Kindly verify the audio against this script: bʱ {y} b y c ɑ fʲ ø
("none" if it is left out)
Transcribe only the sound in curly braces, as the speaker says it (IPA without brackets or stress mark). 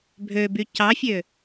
ø